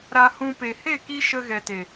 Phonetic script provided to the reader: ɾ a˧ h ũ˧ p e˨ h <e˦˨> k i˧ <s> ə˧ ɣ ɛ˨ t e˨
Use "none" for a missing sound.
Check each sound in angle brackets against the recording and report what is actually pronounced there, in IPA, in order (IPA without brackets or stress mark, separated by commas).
e˦˨, ʃ